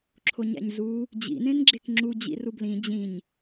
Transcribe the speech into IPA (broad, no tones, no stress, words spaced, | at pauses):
ǁʰoɲæ̰ɲzu | d͡ʑḭ nẽnɡ͡ǁekŋ͡ǁu d͡ʑḭrublĩ d͡ʑĩɲ